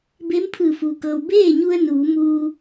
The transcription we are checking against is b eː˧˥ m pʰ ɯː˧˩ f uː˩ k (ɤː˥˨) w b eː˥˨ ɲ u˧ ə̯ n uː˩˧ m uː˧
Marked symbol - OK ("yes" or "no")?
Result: no